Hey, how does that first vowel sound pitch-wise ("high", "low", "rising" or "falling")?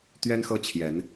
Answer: high